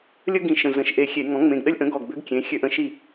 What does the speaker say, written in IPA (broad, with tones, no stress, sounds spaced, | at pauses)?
lʲ ə˥ ɡ ĩ˧˩ ʃ ə̃˧˩ z ə̃˧˩˧ ʃ ʔ e˧˩ xʲ e˧˩˧ ŋ ɔ̃˩˥ ŋ͡m ẽ˩˧˩ ɡ ɗ ə˥ lʲ ʔ ə̃˩˥ ɡ ɔ˧˩ ɡ b ø˥ ɡ kʲ ẽ˩˧˩ xʲ ø˧˩ ʔ ə̃˩˥ ʃ i˧˩